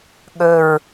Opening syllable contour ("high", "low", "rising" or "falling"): low